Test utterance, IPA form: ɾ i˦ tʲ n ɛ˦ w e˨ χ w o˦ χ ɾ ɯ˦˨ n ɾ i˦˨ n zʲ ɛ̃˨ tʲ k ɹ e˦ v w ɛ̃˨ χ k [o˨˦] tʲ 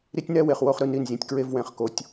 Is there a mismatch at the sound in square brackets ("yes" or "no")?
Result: no